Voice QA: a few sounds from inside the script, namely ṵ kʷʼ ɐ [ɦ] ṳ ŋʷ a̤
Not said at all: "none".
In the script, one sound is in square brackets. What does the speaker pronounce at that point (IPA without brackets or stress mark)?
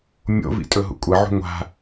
ʕ